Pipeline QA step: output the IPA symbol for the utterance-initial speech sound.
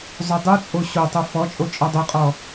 zˤ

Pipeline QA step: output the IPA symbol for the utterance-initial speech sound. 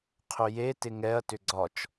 qʰ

